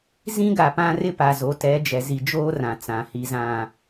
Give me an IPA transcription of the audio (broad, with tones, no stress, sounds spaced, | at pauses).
z ĩ˦ ɡ a˨ p ã˦ r ɪ˦ p a˨ z o˨˦ t ɛ˨˦ d͡ʒ ɛ˨ z i˨ d͡ʒ oː˦ r ã˨ t͡s ã˨ h i˨ z ã˨